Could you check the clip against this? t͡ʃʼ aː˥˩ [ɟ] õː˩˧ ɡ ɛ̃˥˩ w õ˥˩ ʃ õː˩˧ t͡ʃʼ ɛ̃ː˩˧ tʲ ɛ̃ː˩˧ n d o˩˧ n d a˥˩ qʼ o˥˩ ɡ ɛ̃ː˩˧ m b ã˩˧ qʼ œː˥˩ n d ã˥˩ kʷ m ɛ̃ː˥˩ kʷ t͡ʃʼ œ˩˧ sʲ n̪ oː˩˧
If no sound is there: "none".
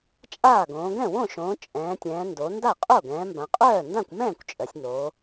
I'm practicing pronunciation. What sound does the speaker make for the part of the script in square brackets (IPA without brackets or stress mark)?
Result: ɡ